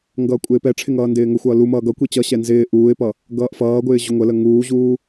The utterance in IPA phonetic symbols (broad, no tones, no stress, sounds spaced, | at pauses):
ŋ ɡ ʌː kʷʼ ɪː p ɛ ʈ͡ʂʰ ɪ ŋ ʌː n d ɪː ŋ ʊ xʷ ʌː l u m ʌː ɡ ʌ kʷ i t͡ɕ ʌ ɕ ɛ n z ɪː ʔ uː ɪ̯ p ʌ | ɡ ʌː ʔ f ʌː ɡʷ ɪː ʑ ʊ ŋʷ ə l ə ŋ uː ʑ uː